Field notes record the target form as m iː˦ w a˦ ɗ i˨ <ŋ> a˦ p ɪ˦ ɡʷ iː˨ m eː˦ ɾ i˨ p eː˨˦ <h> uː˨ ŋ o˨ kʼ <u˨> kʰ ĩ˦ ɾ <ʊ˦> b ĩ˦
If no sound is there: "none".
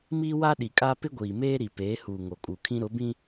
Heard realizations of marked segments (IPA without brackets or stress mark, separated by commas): kʼ, h, u˨, ʊ˨˦